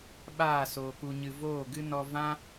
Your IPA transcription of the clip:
ɓ aː˦˨ s oː˨ k u˨ ɲ ɨ˨ v oː˦˨ ɡ ɨ˦ n ɔ˧ v ã˦

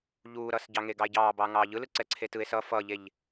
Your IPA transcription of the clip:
ʎ uː ɾ ʌ s ɟ ɑ ŋ e ɡ ɑ e̯ ɟ ɑː b ɑː ŋ ɑː ʎ ɯ l ɯ ǀ ɛ ǀʰ e t ɯ e̯ s ʌ f ʌ ʎ e ʎ

